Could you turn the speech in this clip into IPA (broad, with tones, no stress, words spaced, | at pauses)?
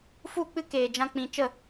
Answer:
fu˦˨k͡pɨ˦ keː˨d͡ʒã˧ k͡pĩ˧ t͡ʃə˦˨